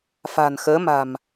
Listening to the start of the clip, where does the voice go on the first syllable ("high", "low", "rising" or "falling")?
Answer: low